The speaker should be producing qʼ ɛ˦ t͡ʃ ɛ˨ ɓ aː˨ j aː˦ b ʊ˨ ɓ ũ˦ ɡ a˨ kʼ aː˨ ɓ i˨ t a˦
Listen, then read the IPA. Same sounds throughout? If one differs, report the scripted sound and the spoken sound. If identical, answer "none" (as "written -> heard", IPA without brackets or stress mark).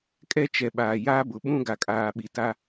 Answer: qʼ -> kʼ